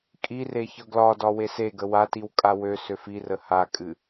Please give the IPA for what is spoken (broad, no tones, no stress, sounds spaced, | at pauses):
kʼ i r e ç ɤ ɡ l ɒ d ɒ w e s e ɡ ə w a t i w kʼ a w ø s ø f i r ə h a kʼ ɨ